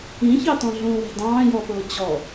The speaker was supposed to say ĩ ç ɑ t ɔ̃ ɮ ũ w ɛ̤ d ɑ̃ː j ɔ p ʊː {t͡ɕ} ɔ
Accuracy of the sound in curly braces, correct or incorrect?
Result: correct